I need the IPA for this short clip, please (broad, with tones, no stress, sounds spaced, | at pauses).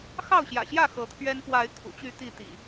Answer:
x ɑ˥˨ ʊ̯ ɕ j ä̰˨˩ ɕ j ä˥˨ x ɤ˨˦ t̪ʰ ɥ ɛ˦ n p w a˨˦ ɪ̯ kʰ ṵ˨˩ t͡ɕ y˥˨ t̪ i˥˨ t̪ ḭ˨˩